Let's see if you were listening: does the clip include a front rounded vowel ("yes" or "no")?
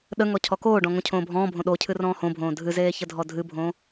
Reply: no